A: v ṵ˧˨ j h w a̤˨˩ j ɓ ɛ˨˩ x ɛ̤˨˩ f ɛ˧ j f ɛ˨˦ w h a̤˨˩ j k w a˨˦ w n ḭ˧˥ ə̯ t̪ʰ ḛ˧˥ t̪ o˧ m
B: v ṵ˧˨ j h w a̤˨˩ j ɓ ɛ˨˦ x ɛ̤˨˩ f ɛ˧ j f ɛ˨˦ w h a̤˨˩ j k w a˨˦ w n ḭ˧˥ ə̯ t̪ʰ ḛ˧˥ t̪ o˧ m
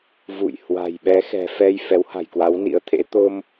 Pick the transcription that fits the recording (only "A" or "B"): B